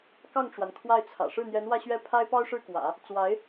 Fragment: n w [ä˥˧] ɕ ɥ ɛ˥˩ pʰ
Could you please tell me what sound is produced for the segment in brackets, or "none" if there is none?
ä˥˧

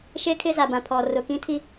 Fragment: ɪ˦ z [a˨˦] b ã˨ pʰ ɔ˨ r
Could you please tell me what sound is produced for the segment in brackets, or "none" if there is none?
a˨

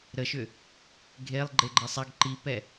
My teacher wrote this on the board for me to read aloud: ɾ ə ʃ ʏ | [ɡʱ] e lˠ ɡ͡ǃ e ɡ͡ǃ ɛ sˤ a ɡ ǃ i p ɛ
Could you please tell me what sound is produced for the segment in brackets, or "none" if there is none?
ɡʱ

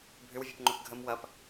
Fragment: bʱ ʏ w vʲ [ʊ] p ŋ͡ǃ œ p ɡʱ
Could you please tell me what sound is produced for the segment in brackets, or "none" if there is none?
ʊ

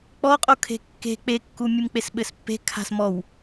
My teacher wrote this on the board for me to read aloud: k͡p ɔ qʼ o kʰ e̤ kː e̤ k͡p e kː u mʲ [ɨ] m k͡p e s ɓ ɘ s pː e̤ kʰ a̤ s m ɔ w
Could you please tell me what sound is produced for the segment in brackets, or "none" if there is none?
ɨ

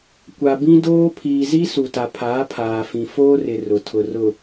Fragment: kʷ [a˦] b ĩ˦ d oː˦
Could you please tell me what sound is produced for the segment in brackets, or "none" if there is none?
a˨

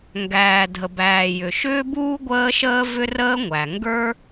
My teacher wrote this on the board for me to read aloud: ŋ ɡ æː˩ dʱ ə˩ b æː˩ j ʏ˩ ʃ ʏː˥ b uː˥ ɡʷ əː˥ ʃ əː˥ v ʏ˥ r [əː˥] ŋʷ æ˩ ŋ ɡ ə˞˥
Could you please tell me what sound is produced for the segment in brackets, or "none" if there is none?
əː˥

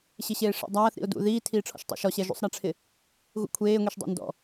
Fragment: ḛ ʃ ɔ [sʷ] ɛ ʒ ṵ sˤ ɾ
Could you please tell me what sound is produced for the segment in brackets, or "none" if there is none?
ɕ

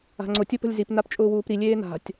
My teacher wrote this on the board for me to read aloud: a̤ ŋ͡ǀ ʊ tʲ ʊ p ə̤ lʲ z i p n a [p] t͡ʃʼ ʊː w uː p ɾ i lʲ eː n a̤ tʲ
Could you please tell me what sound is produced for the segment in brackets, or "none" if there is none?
p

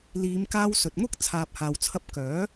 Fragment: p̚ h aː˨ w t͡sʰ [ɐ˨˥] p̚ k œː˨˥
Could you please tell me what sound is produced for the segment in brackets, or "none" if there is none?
ɐ˧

